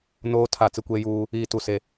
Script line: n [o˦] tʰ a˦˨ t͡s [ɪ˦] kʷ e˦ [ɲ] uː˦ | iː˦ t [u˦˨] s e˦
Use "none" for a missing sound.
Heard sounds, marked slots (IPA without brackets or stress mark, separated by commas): oː˦, ɪ˦, j, u˦˨